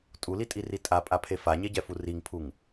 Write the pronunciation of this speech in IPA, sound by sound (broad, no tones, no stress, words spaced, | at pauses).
tʼulitʼiri tʼapʼapʰe faɲeɟɛfu riŋpʰuŋ